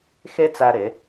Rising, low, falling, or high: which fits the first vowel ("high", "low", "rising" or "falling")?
high